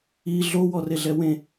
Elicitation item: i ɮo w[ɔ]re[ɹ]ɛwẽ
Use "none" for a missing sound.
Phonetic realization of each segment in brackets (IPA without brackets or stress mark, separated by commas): ɔ, ɮ